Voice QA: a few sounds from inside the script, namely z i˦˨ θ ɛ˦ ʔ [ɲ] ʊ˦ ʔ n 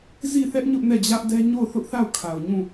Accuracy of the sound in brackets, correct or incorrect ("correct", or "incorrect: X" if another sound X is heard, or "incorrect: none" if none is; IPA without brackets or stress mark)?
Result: correct